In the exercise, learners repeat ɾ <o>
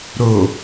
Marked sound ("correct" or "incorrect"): correct